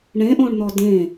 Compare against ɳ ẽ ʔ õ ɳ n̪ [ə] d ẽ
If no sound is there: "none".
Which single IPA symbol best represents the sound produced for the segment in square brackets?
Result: ɔ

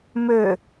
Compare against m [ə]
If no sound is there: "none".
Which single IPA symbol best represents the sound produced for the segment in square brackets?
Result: ø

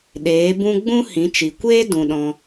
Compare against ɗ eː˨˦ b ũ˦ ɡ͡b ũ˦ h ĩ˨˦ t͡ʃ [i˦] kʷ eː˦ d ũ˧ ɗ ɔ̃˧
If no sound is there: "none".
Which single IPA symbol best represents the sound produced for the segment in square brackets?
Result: i˨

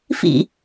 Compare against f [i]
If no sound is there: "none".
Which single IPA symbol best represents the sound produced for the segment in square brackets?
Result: ḭ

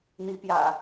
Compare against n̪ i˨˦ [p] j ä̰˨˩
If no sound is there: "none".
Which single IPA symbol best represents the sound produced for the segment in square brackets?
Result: p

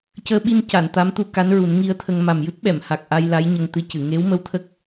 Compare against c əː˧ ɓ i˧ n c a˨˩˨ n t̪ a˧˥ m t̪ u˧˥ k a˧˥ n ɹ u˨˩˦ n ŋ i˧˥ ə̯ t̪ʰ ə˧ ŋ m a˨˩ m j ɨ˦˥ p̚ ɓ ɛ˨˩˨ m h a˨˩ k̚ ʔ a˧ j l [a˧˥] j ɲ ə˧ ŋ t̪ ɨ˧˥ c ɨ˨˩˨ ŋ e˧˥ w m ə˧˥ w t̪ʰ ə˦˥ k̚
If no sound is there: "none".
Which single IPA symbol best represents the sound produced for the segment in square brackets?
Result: a˧˥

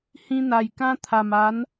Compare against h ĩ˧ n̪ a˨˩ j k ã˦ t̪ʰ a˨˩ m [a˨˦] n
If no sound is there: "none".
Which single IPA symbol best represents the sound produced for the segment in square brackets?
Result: a˨˦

